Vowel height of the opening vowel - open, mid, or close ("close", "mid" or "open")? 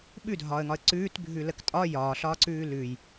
close